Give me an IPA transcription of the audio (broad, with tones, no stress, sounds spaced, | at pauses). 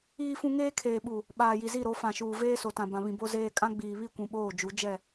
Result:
iː˦ f ũ˦ ŋ eː˦ kʰ eː˨ ɓ u˨ | ɓ aː˨ j i˨ z i˦˨ ɾ o˨˦ f ã˨ ʃ uː˨ v eː˦ s o˨ t ã˨ b ã˨ β ĩ˨ b o˦ z eː˦ kʼ ã˦ ɡ͡b iː˨ β i˦˨ kʷ ũ˨ ɓ oː˦˨ d͡ʒ u˨˦ d͡ʒ ɛ˦˨